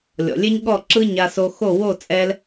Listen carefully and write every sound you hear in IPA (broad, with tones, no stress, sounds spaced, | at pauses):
lʲ ɔ̰˨ lʲ e˦ ɲ ɠ ɔ˦˨ ǁ ɯ˦ ɲ a˧ s o˧ x o˦˨ w o˦˨ t͡sʼ ɛ˧ l